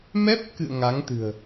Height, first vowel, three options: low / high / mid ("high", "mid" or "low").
mid